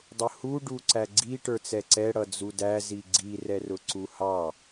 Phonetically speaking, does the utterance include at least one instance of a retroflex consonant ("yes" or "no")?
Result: yes